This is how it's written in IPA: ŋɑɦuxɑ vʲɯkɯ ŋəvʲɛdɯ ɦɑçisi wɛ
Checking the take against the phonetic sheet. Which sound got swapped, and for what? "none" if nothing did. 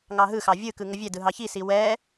u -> ɯ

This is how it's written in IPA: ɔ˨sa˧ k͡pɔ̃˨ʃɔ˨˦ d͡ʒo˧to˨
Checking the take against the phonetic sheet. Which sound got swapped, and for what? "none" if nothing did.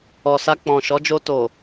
none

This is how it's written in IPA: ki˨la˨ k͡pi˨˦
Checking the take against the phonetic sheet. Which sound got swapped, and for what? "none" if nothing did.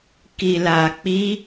none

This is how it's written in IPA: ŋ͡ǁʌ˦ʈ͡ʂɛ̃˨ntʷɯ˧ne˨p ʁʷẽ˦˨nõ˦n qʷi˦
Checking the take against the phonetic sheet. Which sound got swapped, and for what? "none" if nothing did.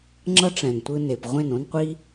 none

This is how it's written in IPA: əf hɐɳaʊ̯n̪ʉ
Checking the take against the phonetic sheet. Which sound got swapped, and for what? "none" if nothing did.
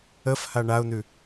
ɐ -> a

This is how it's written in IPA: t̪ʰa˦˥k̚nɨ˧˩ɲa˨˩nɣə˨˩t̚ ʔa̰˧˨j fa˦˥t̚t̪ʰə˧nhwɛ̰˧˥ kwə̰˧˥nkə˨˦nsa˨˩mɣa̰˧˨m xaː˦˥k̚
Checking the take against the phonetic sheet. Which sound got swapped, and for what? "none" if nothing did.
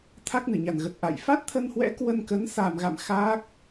ə̰˧˥ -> ə˧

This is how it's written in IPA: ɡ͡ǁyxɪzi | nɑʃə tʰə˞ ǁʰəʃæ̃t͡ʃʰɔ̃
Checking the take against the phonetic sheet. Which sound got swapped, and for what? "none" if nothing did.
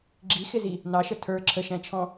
y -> i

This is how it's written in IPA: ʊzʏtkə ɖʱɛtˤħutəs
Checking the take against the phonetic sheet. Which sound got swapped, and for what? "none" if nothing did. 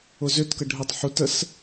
none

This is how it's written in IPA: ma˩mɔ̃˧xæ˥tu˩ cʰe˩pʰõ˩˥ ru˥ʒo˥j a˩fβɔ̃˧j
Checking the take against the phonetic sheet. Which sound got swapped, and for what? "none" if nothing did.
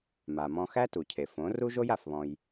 pʰ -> f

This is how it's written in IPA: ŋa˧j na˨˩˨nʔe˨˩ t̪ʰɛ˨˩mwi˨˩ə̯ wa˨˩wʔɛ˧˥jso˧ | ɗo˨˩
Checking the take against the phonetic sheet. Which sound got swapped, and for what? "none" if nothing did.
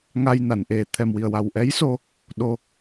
none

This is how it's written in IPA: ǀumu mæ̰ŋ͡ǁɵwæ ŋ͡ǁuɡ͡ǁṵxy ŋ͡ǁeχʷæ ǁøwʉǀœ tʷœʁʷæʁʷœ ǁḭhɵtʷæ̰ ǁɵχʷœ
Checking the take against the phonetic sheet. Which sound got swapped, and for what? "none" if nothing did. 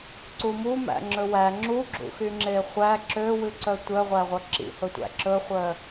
none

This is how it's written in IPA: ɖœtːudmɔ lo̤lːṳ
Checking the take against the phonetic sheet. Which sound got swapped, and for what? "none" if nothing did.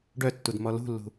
o̤ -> ṳ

